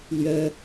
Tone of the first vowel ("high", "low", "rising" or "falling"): high